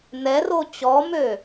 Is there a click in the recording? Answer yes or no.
no